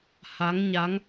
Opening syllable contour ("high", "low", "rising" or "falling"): rising